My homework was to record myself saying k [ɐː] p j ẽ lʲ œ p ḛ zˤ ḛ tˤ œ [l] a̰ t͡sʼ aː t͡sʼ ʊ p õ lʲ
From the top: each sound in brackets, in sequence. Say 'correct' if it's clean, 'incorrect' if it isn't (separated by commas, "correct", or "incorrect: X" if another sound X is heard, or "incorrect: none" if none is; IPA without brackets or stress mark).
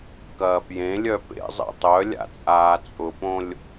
correct, incorrect: lʲ